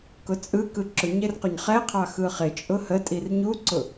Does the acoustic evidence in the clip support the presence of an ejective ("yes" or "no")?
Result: yes